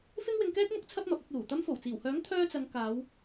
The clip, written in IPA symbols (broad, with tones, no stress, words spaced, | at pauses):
fɪ˥ŋwɪ˧ŋkɛː˥k̚mʊ˥k̚ t͡sʰɐ˥p̚mɐ˨p̚ɐ˨˥k̚luː˨˩ t̪ɐ˧mfo˨˩wt͡siː˨˩whœː˨˥ŋ t̪ʰœː˥t͡sɐ˧ŋ kaː˨˧w